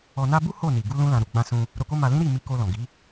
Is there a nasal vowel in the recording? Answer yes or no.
yes